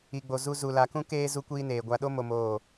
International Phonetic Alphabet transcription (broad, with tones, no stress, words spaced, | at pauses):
i˨ɡ͡bo˨ zu˦ zu˨la˨kũ˦ keː˦ zu˦kʷiː˦neː˨ ɡʷa˨ɗo˦ mo˦moː˦˨